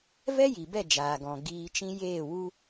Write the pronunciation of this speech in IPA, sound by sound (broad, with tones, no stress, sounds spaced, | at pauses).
v ɛ˦ j i˨ b ɛ˦˨ d͡ʒ aː˨ ɡ ɔ̃˨ ɡ iː˧ t͡ʃ ĩ˦ j eː˦˨ w u˦